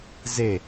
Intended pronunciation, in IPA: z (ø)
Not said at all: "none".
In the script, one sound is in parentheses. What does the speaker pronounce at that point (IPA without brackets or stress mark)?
e